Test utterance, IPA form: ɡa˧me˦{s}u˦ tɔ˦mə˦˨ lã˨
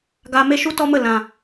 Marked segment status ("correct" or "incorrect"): incorrect